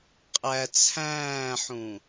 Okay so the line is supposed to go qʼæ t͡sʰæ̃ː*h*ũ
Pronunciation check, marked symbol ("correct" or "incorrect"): incorrect